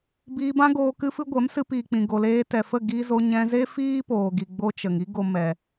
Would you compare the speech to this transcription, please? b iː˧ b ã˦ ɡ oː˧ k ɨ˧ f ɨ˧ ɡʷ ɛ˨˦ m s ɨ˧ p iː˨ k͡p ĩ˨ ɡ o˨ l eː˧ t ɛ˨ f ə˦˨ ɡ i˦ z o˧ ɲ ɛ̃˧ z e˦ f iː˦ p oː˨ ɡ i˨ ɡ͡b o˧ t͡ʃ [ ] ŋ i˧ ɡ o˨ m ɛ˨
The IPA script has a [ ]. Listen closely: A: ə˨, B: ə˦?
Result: A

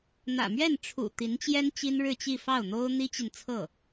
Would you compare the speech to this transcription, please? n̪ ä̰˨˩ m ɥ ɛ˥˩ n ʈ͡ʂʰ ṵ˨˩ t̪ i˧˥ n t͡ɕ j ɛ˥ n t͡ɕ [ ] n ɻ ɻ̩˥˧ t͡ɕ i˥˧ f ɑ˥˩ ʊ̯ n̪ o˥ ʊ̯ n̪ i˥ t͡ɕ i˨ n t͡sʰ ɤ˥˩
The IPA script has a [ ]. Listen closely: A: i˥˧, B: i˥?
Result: B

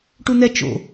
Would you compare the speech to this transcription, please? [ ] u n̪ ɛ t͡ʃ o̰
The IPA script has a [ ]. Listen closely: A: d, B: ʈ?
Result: B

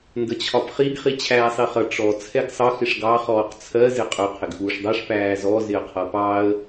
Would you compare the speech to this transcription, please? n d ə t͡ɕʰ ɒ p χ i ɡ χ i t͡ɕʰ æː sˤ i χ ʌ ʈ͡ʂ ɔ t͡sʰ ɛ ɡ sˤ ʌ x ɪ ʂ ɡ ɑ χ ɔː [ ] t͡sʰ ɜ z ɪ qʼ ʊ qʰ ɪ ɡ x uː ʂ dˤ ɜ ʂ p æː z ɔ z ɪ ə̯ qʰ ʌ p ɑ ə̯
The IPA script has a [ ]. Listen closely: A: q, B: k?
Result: A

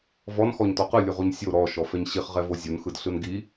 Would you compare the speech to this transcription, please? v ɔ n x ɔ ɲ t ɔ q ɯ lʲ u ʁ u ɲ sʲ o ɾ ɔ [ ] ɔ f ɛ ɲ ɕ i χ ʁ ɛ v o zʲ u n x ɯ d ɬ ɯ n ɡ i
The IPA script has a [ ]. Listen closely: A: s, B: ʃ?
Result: B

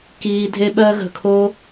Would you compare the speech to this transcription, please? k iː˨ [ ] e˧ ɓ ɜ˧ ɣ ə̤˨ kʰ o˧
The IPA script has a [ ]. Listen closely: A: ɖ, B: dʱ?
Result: B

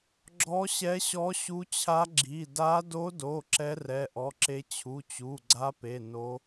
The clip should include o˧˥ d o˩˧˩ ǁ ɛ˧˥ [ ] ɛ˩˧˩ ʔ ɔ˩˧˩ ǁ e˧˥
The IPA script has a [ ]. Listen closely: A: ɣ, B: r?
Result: B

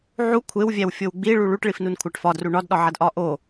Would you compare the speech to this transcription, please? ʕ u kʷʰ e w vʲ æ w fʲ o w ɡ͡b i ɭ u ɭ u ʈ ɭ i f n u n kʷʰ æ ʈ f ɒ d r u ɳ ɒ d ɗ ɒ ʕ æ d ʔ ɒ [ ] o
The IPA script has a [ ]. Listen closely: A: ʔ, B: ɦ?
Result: A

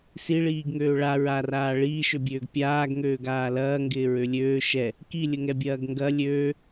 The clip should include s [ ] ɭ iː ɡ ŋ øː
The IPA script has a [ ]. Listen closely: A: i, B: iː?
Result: A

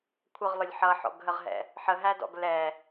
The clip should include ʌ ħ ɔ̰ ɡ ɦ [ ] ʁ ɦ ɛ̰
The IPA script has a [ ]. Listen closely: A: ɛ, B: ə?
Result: B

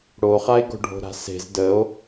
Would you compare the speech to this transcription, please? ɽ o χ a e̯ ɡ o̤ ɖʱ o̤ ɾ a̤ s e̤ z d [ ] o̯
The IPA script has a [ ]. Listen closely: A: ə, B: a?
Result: A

